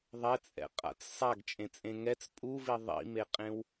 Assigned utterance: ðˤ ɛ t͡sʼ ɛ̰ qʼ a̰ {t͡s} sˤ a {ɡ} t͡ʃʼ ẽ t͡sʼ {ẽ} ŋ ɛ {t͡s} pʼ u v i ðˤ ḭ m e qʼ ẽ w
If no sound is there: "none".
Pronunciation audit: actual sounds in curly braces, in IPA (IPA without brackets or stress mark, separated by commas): t͡s, ɡ, ẽ, t͡s